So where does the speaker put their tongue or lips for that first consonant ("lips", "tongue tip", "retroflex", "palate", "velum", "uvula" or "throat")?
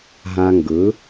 throat